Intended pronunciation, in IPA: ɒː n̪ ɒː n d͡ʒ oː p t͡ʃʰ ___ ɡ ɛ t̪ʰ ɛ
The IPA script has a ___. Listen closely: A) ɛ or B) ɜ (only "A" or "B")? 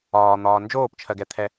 B